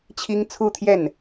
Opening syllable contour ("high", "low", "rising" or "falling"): high